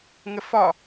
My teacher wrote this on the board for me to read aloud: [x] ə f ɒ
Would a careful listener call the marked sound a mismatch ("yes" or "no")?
yes